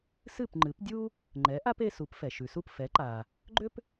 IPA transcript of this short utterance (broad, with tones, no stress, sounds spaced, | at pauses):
s ɨ˥˩ p ŋ͡ǃ ɨ˩˥ p dʲ u˥ | ŋ͡ǃ ɛ˩˥ ʔ a˥ p e˧ s u˩˥ p f ɛ˩ ʃ ʉ˩ s u˥˩ p f ɛ˩˥ ǃ a˩ | ɡ͡ǃ ʏ˥ p